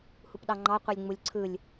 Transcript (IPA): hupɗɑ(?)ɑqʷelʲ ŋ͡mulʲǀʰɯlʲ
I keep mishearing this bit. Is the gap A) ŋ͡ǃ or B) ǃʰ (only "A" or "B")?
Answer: A